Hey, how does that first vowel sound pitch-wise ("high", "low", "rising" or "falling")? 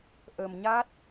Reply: low